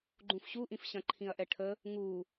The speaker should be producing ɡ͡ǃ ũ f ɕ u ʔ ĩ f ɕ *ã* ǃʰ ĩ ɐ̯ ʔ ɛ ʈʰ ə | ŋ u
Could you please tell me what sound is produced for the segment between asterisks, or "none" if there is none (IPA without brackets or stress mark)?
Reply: ɐ̃